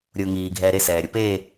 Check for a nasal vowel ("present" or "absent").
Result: absent